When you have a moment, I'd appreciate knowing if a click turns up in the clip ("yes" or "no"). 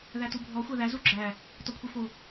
yes